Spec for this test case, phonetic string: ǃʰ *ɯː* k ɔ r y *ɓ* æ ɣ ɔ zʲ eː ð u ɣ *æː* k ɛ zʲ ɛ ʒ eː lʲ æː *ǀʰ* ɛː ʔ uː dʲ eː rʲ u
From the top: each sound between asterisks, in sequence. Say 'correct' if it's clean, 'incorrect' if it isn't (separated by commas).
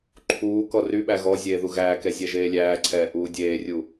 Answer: incorrect, correct, correct, correct